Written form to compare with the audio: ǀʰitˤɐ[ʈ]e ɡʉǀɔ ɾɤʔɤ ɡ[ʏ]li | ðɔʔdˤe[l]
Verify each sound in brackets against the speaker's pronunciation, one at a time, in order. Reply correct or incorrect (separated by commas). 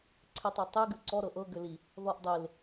incorrect, correct, correct